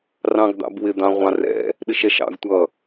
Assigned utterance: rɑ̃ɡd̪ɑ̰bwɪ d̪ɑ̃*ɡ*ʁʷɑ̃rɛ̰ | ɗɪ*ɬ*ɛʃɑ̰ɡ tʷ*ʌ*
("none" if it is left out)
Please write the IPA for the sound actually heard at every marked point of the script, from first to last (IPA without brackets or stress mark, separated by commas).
none, ʃ, ʌ